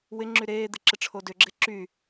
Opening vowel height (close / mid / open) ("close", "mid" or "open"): close